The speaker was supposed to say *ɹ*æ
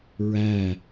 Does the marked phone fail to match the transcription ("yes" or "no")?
no